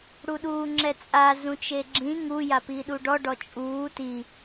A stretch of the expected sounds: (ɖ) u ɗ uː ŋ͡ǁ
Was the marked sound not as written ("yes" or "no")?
yes